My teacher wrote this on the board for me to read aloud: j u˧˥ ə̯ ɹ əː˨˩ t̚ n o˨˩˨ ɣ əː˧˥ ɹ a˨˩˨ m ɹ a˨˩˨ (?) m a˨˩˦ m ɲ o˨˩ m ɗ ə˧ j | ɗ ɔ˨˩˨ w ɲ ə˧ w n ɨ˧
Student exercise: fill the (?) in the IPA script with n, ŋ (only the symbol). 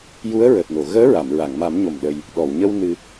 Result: ŋ